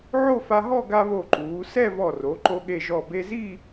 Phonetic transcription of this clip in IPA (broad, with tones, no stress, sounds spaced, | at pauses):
ʕ o˥˧ f a˧ ɦ ɔ˥˧ ɡ a˧ β o˧˩ ǃ uː˩˧ s ɛ˥˧ v ɔ˧˩ r o˩˧ ǃ o˧ ɠ e˧˩ ʒ ɔ˧˩ b e˧ z i˥˧